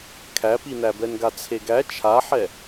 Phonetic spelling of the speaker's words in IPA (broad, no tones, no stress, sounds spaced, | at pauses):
kʰ æ p i n æ b ɛ n ɡ a t͡sʰ e ɡ æ t͡ʃʰ a ħ ɛ